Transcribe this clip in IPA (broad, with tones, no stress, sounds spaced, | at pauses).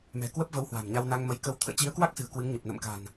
m ɛ̤˨˩ k w ə˦˥ p̚ v ə˧ w h w a̤˨˩ m ɲ a˧ w n a˧ ŋ m ə˨˦ j k ə˨˦ w t̪ʰ ə̰ː˧˨ t͡ɕ i˨˦ ə̯ k w a˦˥ k̚ s ɨ̤˨˩ ə̯ k w ɨ˨˦ ŋ ɲ ə˨˩ p̚ n ə̰˧˨ m k a̤˨˩ n